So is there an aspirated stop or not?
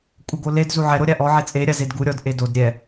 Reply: no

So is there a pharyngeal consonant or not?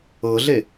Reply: no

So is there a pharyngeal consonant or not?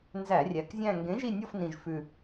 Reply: no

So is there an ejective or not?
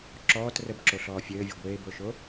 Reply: no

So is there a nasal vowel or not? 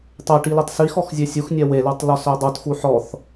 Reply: no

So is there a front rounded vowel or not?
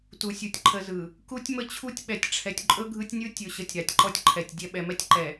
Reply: no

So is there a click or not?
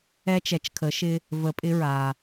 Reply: no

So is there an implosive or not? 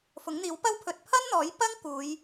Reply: no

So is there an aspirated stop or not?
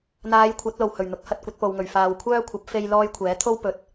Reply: yes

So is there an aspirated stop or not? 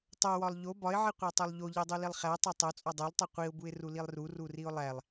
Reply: no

